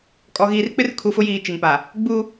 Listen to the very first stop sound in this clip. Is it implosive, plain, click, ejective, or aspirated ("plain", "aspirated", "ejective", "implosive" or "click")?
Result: ejective